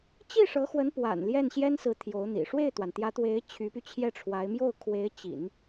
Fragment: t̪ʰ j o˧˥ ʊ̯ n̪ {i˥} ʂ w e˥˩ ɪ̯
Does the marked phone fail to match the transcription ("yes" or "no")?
yes